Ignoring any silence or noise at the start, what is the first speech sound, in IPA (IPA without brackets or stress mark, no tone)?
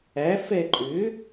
æ